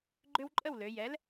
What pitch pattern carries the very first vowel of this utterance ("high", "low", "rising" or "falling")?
high